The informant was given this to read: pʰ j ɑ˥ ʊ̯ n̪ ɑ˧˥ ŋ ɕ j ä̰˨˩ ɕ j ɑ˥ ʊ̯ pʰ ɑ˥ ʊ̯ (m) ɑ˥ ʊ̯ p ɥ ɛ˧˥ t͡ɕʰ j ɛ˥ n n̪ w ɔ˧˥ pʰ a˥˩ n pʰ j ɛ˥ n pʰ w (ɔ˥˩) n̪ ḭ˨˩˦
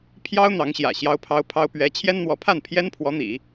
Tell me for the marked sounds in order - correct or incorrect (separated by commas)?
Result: incorrect, incorrect